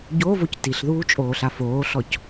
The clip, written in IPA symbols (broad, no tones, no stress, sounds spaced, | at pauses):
ɟ o v o c t i ɬ ð uː t͡ʃʼ oː ɬ a f oː ɬ ɔ c